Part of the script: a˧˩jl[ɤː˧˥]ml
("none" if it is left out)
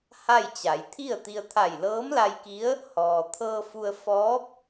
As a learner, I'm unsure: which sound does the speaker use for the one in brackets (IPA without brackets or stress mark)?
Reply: ɤː˧˥